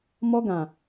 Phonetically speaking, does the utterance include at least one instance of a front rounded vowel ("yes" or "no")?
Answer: no